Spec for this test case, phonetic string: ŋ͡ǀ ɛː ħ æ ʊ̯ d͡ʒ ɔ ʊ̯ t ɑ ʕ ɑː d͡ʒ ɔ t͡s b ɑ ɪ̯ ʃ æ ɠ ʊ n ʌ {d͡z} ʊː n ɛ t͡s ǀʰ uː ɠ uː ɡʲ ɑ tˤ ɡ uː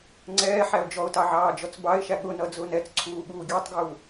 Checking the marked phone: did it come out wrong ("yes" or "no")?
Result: no